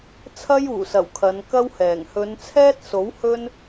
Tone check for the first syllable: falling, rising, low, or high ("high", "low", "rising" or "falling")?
high